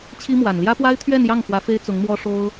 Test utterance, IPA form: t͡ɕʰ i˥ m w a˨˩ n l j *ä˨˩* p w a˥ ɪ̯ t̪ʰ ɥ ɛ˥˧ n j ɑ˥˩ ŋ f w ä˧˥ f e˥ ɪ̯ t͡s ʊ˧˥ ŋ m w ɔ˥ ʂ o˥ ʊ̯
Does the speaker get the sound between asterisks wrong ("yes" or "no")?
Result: yes